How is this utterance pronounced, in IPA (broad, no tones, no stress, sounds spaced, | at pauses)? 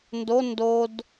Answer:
n d o n d o d